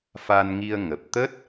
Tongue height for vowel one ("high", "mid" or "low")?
low